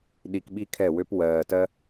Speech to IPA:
ɗ i˨ k ɓ i˦ kʰ ɛ˦˨ w ø˦ p w ɜː˨ t ɜ˦

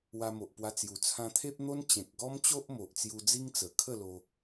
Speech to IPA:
w a˧ m o˨ ʔ p w a˧ t͡s j u˨˩ t͡sʰ ã˧ t̪ʰ e˦ p̚ n̪ o˦ n t͡ɕ ẽ˨ k̚ ɡ ɔ˦ m t͡ɕ o˦ ʔ m o˨ ʔ t͡s j u˧ d͡z i˦ ŋ t͡s ə˨˩ kʰ ə˥˧ l o˧

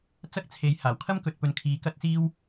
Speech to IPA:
t͡s ɐ˥ k̚ t͡sʰ e˨˧ j h aː˨˩ w kʰ ɐ˥ m k ɵ˨ t̚ p ɵ˨ n kʰ iː˨ k ɐ˥ t̚ s iː˥ w

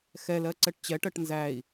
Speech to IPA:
x ɛ l ɜ ǀ ɛ ʈ t͡ɕ ɛ ʈ ɜ ʈ n z æ i̯

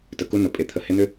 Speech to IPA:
t ə˨ k u˦ n ʊ˨ pʼ e˨ t̪ʰ ə˨ h ɪ˦ n̪ ʏ˦

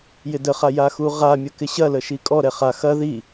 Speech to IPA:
j ɪ d ə χ a j a x u ʁ a mʲ ə k ɪ ɕ ɐ l ə ʃ i kʼ ɔ ɾ ɛ χ a x ɐ ð i

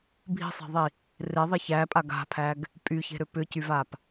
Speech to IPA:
bʱ i̤ sˤ e̤ ðˤ i | r e ðˤ i ç æ pʼ a ɡ a̤ pʰ æ ɡ | pʼ y ç e̤ ɾ ʏ p ʏ c y v a p

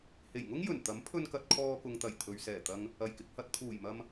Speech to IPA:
h e˨˩ j ŋ ʊ˥ ŋ j ɵ˨˩ n t̪ ɐ˨˥ m pʰ ɵ˧ n k ɐ˨ t̚ kʰ ɔː˧ k ʊ˨ ŋ t̪ ɐ˨˩ j t̪ʰ ɵ˨ ɥ s ɛː˨˩ t̪ ɐ˧ ŋ | ɐ˨˩ j k ɪ˧ k̚ h ɐ˧ t̚ t̪ʰ uː˨˩ j m ɐ˧ m

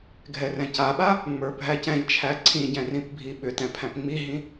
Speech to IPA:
ɡʱ ɛ r ɛ̃ c a ɓ a | ŋ͡m ə˞ bʱ æ c ɛ̃ ʎ t͡ʃʰ æ ǀʰ ĩ ɟ ɛ̃ r ĩ p bʱ i ɓ ʏ t ɛ̃ pʰ æ̃ p ŋ͡m i ɦ ĩ

